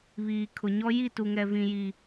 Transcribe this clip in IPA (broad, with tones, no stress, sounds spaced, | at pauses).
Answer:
β iː˨ kʰ ʊ˨ ɲ ɔ˦ j i˦˨ t u˨ ŋ ɛ˨ v ĩ˨ j i˨